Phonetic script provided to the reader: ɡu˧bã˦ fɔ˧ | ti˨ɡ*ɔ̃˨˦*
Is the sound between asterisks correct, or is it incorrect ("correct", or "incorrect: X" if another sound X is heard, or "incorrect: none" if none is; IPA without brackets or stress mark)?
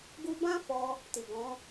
correct